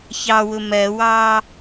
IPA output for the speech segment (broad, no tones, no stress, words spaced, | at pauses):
çɑwʊ mɜwɑː